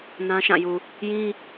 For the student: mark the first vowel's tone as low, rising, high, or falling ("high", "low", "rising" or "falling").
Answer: high